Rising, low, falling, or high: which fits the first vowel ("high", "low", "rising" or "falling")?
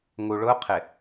low